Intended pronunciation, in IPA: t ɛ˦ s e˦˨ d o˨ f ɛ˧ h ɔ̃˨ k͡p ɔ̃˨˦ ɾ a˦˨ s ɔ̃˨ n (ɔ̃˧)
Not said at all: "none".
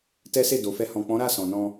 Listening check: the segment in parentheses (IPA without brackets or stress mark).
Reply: ɔ̃˧